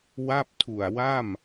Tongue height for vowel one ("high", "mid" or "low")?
low